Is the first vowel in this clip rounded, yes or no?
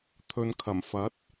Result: yes